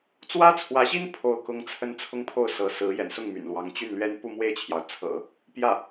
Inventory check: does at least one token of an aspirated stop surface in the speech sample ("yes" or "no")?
yes